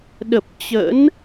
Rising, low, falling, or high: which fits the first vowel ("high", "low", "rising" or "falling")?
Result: low